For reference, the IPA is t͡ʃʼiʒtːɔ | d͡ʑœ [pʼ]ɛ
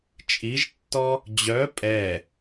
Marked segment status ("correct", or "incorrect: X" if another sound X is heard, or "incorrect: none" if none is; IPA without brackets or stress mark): correct